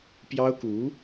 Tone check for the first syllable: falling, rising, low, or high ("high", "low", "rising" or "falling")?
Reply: high